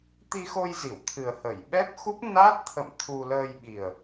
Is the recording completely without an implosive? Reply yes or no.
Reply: no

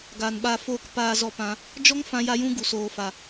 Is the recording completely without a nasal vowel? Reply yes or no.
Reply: no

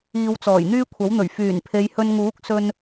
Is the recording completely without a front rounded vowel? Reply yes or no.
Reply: no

